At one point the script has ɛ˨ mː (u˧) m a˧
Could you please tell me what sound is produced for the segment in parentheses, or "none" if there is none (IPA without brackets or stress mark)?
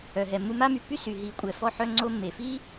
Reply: u˧